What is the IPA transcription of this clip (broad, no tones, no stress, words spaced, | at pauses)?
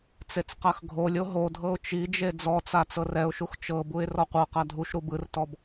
t͡set͡sqaxɡʱolʲo ɦodʱɤʊ̯ t͡ʃid͡ʒe d͡zɔt͡sa t͡sɤrɛʊ̯ʃux t͡ʃɤbuɪ̯ rɔqʷɤqa dʱuʃɾu bɯrtɔb